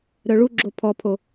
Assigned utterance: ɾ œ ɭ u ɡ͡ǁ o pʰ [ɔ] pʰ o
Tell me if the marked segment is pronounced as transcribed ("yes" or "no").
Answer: yes